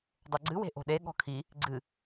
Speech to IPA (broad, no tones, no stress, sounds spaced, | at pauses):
dˤ o ɡ͡ǀ ɨ w e̤ ʔ o̤ ɗ e ɠ ɔ̤ kʰ i | ɡ͡ǀ ɨ